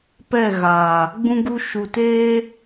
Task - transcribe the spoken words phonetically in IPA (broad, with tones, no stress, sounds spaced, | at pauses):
p ɛ˦˨ ɣ aː˨ | ɡ͡b ũ˧ ɡ u˧ ʃ u˨ t eː˦